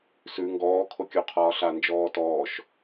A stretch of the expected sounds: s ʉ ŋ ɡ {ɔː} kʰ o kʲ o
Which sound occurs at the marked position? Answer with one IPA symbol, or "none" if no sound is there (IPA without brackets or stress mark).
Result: ɔː